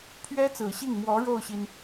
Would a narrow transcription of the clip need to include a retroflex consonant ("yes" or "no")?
yes